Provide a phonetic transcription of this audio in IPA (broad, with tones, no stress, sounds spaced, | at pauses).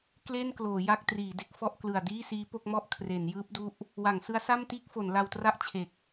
k l e˥˩ n k l oː˩˦ j a˥˩ k̚ t r iː˩˦ d e˦˥ k̚ f ɔ˥˩ ʔ k l ɯ˨˩ a̯ d iː˥˩ s iː˦˥ p o˥˩ k̚ m ɔ˥˩ ʔ kʰ r e˩˦ n j ɯː˦˥ p̚ d u˦˥ ʔ | w a˩˦ ŋ s ɯ˦˥ a̯ s a˥˩ m t iː˥˩ k̚ f o˩˦ n l a˧ w t r a˥˩ ʔ t͡ɕʰ e˨˩ k̚